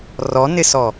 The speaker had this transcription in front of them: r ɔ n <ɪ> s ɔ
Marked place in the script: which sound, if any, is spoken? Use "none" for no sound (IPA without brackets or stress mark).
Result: ɪ